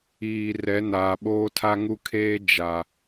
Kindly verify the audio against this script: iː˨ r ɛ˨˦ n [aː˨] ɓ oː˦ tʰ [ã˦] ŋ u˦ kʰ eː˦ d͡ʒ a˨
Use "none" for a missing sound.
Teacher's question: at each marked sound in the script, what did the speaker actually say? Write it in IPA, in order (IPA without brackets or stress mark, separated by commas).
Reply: aː˨, a˦